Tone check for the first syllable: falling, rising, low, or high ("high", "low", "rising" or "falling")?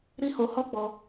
high